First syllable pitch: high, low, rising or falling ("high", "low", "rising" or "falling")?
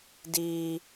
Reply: high